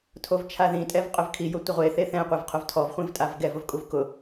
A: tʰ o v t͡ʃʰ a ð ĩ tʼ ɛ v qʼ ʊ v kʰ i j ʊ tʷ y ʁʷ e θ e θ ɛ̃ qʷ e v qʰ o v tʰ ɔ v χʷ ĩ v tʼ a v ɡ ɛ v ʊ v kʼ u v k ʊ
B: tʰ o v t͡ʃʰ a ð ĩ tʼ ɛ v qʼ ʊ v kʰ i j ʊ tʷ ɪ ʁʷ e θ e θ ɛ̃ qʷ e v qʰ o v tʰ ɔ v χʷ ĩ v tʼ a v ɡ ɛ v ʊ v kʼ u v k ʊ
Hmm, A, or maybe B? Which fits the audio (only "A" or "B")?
B